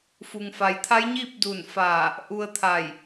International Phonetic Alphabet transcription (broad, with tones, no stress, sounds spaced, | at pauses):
f u˩ ŋ f a˩ j t̪ʰ a˧˥ j ɲ iː˥˨ p̚ d u˧˩ n f aː˧˩ | ʔ u˧ ə̯ t̪ʰ a˧˩ j